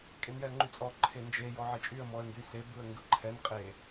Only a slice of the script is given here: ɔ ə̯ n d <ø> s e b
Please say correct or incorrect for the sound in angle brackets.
incorrect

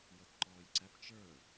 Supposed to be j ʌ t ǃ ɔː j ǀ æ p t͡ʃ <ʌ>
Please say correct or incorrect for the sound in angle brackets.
incorrect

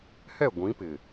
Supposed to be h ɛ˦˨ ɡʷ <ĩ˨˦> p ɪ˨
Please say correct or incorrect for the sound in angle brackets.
correct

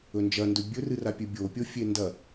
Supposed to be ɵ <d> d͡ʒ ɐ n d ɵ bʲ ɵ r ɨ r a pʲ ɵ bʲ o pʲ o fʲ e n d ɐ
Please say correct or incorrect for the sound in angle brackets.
incorrect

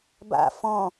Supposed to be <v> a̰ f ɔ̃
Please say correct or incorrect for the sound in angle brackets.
incorrect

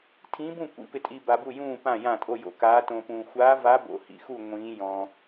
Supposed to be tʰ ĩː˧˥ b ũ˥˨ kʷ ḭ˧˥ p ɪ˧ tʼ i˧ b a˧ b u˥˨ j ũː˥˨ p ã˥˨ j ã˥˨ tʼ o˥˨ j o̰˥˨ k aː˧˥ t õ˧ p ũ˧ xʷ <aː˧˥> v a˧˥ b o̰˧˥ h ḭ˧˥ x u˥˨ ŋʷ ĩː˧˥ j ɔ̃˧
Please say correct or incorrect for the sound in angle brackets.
correct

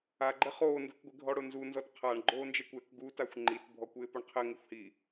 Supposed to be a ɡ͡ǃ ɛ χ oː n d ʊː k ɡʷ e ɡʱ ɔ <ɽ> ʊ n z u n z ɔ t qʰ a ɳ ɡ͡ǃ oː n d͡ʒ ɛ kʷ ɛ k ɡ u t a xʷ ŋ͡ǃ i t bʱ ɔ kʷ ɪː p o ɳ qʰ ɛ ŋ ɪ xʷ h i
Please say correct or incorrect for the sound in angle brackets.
correct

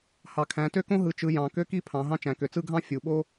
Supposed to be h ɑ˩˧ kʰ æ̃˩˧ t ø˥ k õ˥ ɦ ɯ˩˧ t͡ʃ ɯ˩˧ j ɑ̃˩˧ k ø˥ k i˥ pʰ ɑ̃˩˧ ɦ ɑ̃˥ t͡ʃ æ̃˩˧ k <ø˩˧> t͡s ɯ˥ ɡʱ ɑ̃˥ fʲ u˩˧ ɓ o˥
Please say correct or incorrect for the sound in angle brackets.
correct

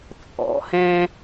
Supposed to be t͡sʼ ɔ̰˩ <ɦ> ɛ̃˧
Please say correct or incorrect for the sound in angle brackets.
incorrect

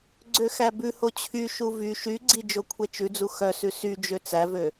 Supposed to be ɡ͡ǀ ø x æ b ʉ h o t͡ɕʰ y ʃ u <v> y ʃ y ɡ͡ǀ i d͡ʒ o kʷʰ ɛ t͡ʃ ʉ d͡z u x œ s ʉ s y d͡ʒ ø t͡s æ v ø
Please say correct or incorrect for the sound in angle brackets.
correct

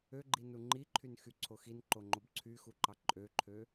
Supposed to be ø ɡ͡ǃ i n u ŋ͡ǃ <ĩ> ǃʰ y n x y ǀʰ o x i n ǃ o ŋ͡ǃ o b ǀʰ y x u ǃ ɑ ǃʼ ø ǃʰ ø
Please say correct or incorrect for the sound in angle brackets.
incorrect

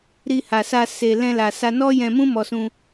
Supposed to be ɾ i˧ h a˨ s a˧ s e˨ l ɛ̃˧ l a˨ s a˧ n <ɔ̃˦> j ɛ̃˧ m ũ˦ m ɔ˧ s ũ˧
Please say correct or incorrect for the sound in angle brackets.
incorrect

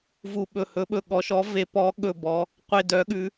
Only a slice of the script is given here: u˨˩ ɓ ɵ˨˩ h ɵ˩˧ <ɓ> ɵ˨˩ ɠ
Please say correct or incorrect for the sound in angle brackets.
correct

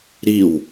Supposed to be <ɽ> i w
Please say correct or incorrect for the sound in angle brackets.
incorrect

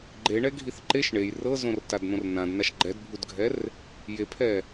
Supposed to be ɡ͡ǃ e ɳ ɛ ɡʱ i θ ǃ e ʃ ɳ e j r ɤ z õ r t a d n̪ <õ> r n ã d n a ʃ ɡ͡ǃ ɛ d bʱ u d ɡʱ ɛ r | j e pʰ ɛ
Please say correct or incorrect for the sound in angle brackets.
correct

